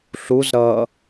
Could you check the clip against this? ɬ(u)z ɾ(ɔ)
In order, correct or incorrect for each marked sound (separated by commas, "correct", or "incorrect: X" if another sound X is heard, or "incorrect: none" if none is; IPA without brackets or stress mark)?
correct, incorrect: ʌ